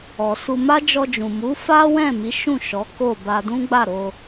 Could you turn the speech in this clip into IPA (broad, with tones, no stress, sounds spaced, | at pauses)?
ɔ˨ s u˧ m a˦ d͡ʒ ɔ˧ d͡ʒ ũ˨ m u˨˦ f a˦ w ɛ̃˦˨ m i˨˦ ʃ ũ˦˨ ʃ ɔ˨˦ k o˦˨ b a˧ d ũ˦ ɡ͡b a˦˨ ɾ o˧